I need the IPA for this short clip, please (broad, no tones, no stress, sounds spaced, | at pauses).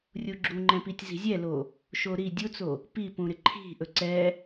rʲ u ɡ͡ǁ u ŋ͡ǃ ɛ̃ p i tʲ z i̤ zʲ ɛ l o | ʃ o ɾ i dʲ u t͡s o | p i p ũ ɾ ɪ ǃʰ i̤ ʔ ɵ ǀ ɛ